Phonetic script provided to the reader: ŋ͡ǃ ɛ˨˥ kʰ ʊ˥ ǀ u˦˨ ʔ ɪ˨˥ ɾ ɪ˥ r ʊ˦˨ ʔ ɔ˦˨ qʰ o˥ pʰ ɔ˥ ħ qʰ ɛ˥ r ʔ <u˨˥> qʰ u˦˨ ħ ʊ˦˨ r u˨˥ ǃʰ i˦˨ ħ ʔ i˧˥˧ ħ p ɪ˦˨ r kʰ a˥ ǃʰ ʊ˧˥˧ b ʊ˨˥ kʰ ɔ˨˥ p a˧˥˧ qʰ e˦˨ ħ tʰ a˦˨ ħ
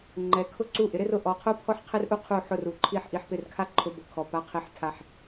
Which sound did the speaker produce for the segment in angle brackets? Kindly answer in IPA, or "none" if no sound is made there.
u˥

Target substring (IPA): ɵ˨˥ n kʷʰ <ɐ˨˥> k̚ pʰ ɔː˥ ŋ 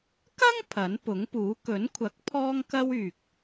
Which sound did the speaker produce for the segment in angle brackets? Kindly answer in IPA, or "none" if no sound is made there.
ɐ˨˥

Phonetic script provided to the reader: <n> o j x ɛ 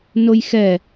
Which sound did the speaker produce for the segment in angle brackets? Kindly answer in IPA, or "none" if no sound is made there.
n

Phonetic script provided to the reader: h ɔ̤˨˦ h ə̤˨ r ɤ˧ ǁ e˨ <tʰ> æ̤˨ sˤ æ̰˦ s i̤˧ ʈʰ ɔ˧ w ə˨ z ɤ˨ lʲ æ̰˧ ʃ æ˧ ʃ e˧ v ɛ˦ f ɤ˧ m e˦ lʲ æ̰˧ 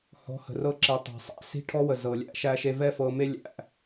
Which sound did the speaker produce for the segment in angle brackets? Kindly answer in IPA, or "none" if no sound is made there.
tˤ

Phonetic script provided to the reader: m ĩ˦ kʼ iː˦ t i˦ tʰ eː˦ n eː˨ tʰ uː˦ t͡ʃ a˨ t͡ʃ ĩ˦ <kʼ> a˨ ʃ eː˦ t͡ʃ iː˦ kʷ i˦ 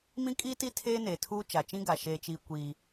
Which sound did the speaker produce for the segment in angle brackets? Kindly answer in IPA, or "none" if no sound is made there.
ɡ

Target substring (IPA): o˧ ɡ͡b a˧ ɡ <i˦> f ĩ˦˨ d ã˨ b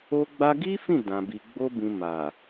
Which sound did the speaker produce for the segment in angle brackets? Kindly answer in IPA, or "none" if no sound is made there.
i˦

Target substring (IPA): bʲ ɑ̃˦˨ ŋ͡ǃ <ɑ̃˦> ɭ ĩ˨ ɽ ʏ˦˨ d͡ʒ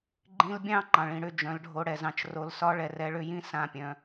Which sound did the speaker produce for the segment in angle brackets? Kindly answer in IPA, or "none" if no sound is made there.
ɑ̃˨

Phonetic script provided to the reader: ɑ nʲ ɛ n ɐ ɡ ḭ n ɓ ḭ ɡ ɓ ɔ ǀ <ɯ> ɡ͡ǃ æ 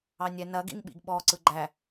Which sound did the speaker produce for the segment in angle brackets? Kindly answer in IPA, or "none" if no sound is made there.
ɯ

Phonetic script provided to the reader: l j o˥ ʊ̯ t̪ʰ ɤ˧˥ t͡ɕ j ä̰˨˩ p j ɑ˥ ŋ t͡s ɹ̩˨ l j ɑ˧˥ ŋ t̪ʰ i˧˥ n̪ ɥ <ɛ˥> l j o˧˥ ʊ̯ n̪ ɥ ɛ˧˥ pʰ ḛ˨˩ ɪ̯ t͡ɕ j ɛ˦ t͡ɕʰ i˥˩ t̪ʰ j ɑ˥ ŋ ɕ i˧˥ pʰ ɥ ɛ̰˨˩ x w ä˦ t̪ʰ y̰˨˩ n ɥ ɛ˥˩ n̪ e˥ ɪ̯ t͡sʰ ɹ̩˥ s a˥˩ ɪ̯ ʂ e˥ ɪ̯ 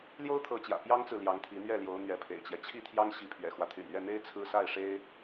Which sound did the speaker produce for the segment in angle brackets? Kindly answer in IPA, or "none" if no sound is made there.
ɛ˥˩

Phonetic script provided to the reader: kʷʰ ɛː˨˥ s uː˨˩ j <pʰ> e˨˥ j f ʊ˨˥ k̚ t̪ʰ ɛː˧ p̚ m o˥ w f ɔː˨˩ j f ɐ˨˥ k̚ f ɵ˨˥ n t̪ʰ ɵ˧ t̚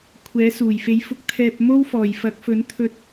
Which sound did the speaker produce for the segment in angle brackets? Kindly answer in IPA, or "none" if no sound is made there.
f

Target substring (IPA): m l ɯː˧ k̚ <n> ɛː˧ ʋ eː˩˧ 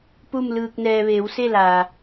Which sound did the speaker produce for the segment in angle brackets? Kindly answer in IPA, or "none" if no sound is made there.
n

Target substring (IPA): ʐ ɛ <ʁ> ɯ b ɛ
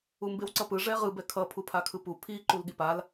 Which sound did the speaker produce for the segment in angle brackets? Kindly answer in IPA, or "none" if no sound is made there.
ʁ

